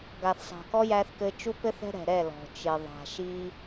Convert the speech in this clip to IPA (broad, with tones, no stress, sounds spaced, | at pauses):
ɡ a˨ θ sˤ a̤˨ k ɔ˦ j æ˦ θ k ɘ˦ t͡ʃ u˦ p ɘ˦ θ ɛ̤˦ ɾ ɛ̤˨ ɾ ɛ˦˨ l ɔ̤˨ t͡ʃ ɪ˨ ðˤ a̤˨ ʃ i˦